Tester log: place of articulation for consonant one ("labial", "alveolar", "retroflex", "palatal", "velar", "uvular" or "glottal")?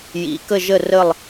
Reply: palatal